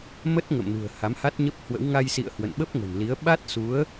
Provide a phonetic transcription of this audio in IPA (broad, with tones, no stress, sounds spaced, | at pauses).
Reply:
m ə˦˥ t̚ ŋ ə̰˧˨ m n ṳ˨˩ ə̯ h a˨˦ m h a˦˥ t̚ ɲ ə˦˥ p̚ h w ə̰˧˥ w ŋ a˧ j s ḭ˧˨ ə̯ h w ə̰˧˨ n ɓ ə˦˥ p̚ ŋ ə̤˨˩ n l i˨˦ ə̯ ɓ a˦˥ t̚ s u˨˦ ə̯